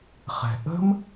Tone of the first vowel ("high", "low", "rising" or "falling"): low